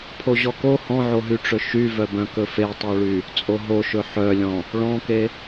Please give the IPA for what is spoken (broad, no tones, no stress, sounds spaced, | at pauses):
pʰ o ʑ ɔ k o h ɔ̃ ʕ o ɦ y ʈ͡ʂ ɵ ʃ y v œ b œ̃ k ɵ f e tˤ o ɭ y | t͡sʼ o ɦ o ʃ ɵ ħ œ lʲ ɔ̃ | ɭ ɔ̃ k e